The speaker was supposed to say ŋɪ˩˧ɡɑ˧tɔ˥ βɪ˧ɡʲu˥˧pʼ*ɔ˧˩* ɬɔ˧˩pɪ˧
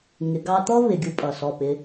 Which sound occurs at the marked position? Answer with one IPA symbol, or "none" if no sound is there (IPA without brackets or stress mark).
ʌ˧˩